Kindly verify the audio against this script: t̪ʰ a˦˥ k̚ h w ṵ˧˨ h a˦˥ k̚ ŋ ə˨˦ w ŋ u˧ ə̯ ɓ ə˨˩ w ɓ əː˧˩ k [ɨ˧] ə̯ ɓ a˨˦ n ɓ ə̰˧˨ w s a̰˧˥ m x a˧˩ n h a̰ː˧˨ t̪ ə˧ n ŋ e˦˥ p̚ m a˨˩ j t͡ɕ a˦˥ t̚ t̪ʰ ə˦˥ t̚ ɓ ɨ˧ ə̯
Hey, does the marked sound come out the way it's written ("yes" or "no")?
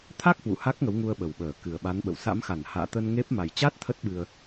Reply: no